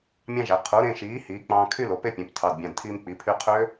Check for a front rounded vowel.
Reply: present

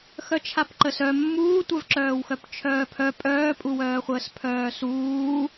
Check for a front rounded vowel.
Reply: present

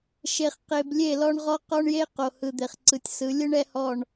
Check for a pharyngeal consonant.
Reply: absent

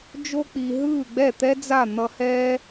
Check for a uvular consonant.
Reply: absent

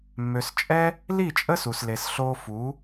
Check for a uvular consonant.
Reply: absent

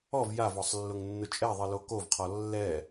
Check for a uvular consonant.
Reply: present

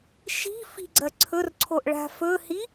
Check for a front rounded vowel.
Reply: absent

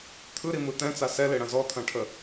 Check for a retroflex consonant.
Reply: present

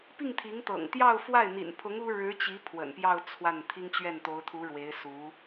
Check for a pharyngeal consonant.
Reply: absent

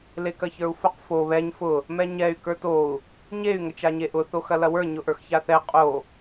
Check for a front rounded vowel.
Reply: present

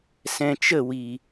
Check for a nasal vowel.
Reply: present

